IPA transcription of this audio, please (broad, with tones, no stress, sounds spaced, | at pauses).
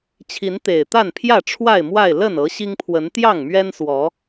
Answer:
t͡ɕʰ i˨˦ n t̪ e˨˩ ɪ̯ t̪ a˥˨ n pʰ j ä˥˨ ʈ͡ʂʰ w a˥˨ ɪ̯ m w a˥˨ ɪ̯ l ə˥˨ n ɤ˨˦ ɕ i˦ ŋ pʰ w ə˨˦ n t̪ j ɑ˥˨ ŋ m ɥ ɛ˦ n s w ɔ˨˦